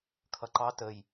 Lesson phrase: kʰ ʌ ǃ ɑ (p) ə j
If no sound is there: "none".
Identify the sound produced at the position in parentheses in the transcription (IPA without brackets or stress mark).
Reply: t